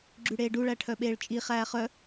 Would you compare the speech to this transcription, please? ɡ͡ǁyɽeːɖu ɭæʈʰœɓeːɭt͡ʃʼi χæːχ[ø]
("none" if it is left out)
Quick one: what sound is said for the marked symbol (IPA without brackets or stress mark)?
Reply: œ